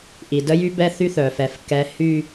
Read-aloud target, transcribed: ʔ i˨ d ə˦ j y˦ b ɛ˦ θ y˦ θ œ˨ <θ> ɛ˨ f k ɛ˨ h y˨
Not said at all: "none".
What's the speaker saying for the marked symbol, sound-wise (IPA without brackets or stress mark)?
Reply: f